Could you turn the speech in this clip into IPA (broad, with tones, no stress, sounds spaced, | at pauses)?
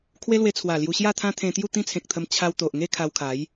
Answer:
kʰ w e˦ l w e˧ t͡sʰ w a˨˩ l j u˧ ɕ j a˥˧ t̪ʰ ã˦ t̪ʰ ẽ˧ t̪ j u˥˧ t̪ ĩ˦ t͡sʰ ẽ˨ k̚ t̪ʰ ə˧ m t͡ɕʰ a˧ w t̪ o˨ ʔ ŋ e˥˧ kʰ a˧ w kʰ a˨˦ j